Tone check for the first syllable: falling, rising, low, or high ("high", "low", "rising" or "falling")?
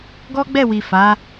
high